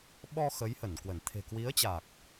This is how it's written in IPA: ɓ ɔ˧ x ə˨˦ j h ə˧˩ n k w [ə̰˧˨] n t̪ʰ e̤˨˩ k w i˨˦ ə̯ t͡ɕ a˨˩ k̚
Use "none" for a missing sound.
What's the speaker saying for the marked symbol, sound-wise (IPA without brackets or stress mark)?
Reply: ə˧˩